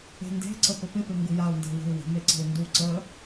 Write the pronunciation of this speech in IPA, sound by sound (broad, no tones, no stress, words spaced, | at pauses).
e̤nde̤ǀə pəpɪpe ŋɡujau̯nda̤ we̤u̯wə̤me ǀə̤u̯ndu ǀə